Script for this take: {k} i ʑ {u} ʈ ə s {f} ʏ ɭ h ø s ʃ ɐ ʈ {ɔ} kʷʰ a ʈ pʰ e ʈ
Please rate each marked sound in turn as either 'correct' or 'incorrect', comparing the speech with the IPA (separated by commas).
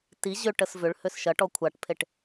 incorrect, incorrect, incorrect, correct